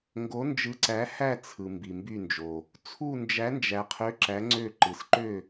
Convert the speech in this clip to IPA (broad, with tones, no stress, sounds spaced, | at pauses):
ŋ ɡ o˨˥ n d͡ʒ ɯ˨˥ ǀ æ˨˥ h æ˦˨ t͡sʰ ɯ˨ m b i˨ m b y˦˨ n d͡ʒ o˨ | t͡sʰ u˦˨ n d͡ʒ æ˨˥ n d͡ʒ æ˨ qʰ ø˨˥ ǁ æ˨˥ ŋ͡ǀ ø˦˨ ǃ ɯ˨ s ǃ ø˦˨